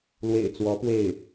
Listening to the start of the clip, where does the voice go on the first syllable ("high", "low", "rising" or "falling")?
low